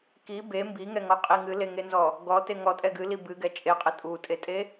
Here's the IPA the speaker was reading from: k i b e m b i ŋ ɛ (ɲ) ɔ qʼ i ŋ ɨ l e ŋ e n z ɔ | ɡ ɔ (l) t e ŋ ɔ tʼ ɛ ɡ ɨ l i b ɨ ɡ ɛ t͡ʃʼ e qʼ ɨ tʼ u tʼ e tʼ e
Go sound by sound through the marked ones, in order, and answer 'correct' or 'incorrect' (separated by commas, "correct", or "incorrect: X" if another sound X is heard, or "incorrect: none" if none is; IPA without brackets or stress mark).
incorrect: ŋ, incorrect: none